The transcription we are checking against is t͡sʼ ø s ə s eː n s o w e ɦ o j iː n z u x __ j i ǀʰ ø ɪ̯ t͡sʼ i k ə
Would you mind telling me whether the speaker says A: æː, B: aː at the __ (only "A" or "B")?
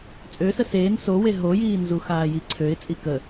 B